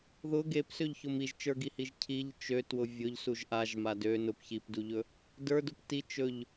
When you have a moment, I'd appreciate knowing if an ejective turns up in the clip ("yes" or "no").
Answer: no